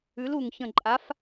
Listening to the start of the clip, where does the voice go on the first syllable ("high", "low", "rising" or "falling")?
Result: rising